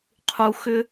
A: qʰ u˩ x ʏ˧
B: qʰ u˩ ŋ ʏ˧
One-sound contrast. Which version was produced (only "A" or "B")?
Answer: A